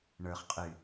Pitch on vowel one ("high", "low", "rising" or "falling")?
low